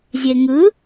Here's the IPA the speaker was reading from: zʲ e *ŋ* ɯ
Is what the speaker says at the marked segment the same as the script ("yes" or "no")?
yes